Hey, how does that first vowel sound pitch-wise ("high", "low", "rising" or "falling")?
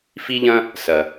high